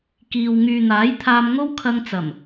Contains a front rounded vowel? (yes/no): yes